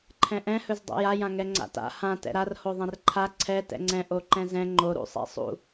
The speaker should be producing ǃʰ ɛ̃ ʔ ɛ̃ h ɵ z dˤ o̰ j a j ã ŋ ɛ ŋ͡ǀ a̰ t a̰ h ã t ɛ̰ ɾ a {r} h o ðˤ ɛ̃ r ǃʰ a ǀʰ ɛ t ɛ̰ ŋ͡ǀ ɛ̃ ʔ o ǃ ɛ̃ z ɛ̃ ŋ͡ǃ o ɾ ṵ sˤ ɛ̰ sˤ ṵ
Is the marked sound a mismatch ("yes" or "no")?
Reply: no